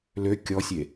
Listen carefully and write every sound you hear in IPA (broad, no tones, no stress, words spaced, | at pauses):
lø kʲɔsʲe